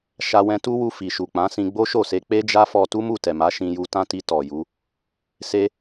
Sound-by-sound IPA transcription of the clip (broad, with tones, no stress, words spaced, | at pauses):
ʃa˧wɛ̃˧tu˦wu˧ fi˨ʃu˨ k͡pã˨˦sĩ˧ ɡ͡bo˦ʃo˦˨se˧ k͡pe˦d͡ʒa˦fɔ˧ tu˦mu˦˨tɛ˨ma˨˦ ʃĩ˧ju˧ tã˦ti˧ tɔ˨ju˨˦ | se˦